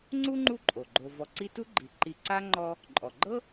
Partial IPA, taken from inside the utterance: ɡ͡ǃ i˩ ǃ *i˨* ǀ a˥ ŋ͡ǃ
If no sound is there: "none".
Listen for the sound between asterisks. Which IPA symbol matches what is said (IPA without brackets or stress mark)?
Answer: i˨